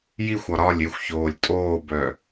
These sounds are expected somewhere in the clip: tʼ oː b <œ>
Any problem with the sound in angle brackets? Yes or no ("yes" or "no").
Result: no